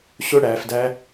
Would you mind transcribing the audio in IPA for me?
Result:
ɕ ʊ ɽ æ f d æ

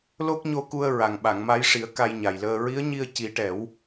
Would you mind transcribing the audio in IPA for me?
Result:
l o˦˥ k̚ ɲ o˧ k u˧ ə̯ ɹ a˨˩ ŋ ɓ a˨˩˨ ŋ m a˧˥ j ʂ i˨˩˦ ə̯ k a˧ j ɲ a˨˩ j l əː˧ ɹ i˧˥ ə̯ ɲ i˧ ə̯ c i˨˩˦ ʈ ɛ˨˩˦ w

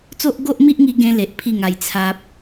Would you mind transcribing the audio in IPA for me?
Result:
t͡s o˦ ʔ ɡ o˦ ʔ m i˦ ʔ ŋ i˧ ɡ ẽ˦ l e˨ ʔ pʰ i˥˧ ŋ a˧ j t͡sʰ a˦ p̚

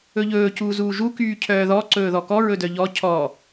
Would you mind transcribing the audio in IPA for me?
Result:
ɵ ʎ ɵː c uː z uː ʒ u k yː cʰ œː ð ɔ ǀ ɵː ð ɔ k ɔ ɹ ɵ d œ ʎ ɔ cʰ ɔ

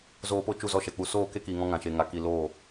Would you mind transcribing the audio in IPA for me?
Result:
z oː˧ p o˦ t͡ʃ u˦˨ z ɔ˦ ʃ ɛ˨ k͡p u˧ s oː˦˨ k e˦ k iː˨ ŋ ɔ̃˧ ŋ ã˨ ʃ e˨ ŋ a˨ k i˨ l oː˦˨

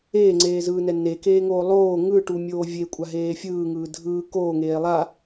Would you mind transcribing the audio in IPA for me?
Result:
eː ŋ͡ǀ eː z ɯː n ɛ n e k eː ŋ oː lˠ oː ŋ ɯ ʈ u mʲ oː vʲ e kʷʼ a ɦ eː fʲ ɯː ŋ ɯː dʱ ɯː k oː ŋ eː lˠ a

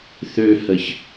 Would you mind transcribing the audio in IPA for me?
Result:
θ ø h ə ç

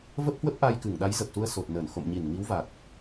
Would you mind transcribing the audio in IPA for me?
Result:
v ə˦˥ p̚ h w ə˦˥ p̚ ʔ a˧ j k ɨ˧˩ ŋ ɗ a˨˦ j z ə˨˩ p̚ s u˧ ə̯ s o˨˩ t̚ n əː˧˩ n x o̰˧˨ m ɲ i˧˩ n ŋ i˨˦ w v a˨˩ t̚

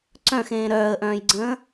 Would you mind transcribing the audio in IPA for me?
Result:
ǀ œ̃ x ẽː ɾ œː ə̯ ʔ œ̃ː j ɡ͡ǀ ə̃ː

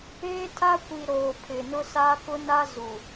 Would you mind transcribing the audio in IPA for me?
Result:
eː˦ tʰ a˦ kʷ i˨ ɾ oː˨ pʰ ɪ˨ n ʊ˦ s a˦ k ʊ˦ n a˦ z u˨

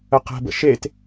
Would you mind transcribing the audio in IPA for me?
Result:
ə q ɛ̤ b ə̰ ʃ e t

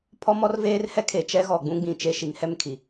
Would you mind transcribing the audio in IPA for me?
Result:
pʰ ɔ˦ m ɔ˦ r v eː˦ r h ɛ˦ kʰ e˨ t͡ʃ ɛ˦ ɣ ɔ˨ ɡ͡b ũ˦ ɡ͡b ĩ˨ t͡ʃ e˦ ʃ i˨˦ ŋ h ɛ˦ m kʰ i˨

